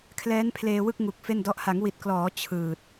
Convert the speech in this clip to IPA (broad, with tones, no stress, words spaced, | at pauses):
kʰlɛː˦˥npʰleː˧wɯ˥˩k̚ŋu˨˩k̚ fe˥˩ndɔ˦˥ʔ ha˩˦ŋwi˨˩t̚klɔː˩˦ t͡ɕʰɯː˨˩t̚